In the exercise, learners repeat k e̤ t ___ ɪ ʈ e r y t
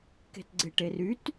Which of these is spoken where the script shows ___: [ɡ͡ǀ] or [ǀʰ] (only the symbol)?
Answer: ɡ͡ǀ